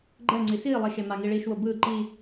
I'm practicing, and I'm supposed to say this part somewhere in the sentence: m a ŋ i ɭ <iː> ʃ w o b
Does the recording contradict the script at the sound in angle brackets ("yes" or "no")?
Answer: no